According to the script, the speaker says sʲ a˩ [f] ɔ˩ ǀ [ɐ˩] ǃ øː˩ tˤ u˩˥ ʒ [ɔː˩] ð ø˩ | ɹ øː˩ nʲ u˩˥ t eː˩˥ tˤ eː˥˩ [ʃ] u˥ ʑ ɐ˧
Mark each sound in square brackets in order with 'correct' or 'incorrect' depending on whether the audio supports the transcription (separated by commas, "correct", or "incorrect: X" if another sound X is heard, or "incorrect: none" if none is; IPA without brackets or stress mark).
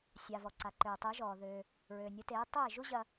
incorrect: v, incorrect: a˩, correct, incorrect: ʒ